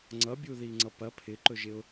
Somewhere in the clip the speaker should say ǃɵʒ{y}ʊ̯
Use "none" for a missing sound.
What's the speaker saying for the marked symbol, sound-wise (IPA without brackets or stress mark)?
ɪ